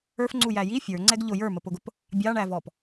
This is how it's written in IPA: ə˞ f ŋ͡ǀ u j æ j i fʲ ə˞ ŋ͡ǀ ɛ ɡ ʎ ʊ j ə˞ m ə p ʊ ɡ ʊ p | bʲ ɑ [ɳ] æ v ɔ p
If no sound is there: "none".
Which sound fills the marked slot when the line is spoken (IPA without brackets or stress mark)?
ɳ